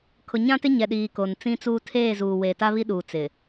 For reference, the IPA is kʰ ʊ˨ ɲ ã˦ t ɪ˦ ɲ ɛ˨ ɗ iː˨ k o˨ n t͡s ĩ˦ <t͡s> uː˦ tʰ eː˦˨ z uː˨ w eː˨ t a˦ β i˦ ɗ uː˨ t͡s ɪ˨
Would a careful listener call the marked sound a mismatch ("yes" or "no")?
no